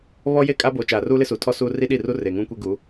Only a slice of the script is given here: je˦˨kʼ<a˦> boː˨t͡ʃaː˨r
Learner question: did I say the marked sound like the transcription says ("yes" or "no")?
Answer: yes